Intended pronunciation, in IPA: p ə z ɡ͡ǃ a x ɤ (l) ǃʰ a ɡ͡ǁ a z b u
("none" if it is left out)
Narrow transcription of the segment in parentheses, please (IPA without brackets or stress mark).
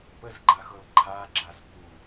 l